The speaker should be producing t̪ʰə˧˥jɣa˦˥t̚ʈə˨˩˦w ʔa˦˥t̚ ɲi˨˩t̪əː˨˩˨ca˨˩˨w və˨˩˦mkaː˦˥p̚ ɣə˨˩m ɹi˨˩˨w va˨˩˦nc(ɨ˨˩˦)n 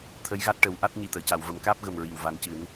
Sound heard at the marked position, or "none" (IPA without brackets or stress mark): ɨ˨˩˦